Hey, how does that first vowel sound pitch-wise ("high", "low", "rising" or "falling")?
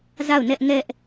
falling